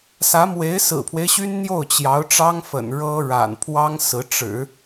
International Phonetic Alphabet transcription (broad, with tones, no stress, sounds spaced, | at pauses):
s ä˧˥ m w e˧˥ ɪ̯ s ɹ̩˨˩ pʰ w e˦ ɪ̯ ɕ y˥ n n̪ j o˥˩ ʊ̯ t͡ɕ j ɑ˧˥ ʊ̯ ʈ͡ʂ ɑ˥ ŋ f ə̰˨˩ n ɻ ɤ˥ ɻ a̰˨˩ n pʰ w ɑ˥ ŋ s ɹ̩˧˥ ʈ͡ʂ ɻ̩˨˩˦